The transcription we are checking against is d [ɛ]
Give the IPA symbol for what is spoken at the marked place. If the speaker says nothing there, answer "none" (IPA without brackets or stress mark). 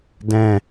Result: ɛ̃